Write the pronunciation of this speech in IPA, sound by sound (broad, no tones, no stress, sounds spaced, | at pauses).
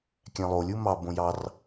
kʲ æ̃ lˠ o lʲ u m ɑ b õ j ɑ r